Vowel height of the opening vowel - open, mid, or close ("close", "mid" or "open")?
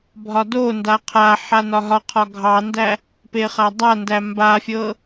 open